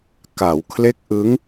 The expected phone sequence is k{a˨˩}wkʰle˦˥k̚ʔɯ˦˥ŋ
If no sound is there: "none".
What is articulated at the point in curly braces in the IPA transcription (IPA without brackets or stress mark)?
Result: a˩˦